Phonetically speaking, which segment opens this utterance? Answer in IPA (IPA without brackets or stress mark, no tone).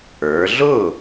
ə˞